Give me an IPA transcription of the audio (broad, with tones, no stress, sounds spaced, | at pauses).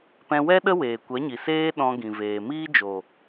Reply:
p ɛ̃˧ w ɛ˦ ɗ ə˦ w eː˨ kʷ ɛ˨˦ ɲ i˨ s eː˦ ɗ ɔ̃˧ ɡ ĩ˨ v eː˨ m iː˦ d͡ʒ o˨